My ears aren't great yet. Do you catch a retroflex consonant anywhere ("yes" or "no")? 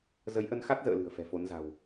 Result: no